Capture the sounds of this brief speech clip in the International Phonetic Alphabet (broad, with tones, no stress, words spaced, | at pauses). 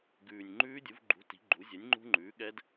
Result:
ɡʉː˨˩nʲŋ͡ǃʉː˦˥dʲu˩˥v ɡ͡ǃṳ˩˥ ti̤˩˥ɡ͡ǃu˩˥ zʲɛ˩˥nʲŋ͡ǃṳ˦˥ŋ͡ǃʉː˩˥ ɠɛ˦˥d